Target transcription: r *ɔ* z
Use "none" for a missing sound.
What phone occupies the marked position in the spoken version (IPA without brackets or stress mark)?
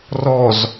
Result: ɔ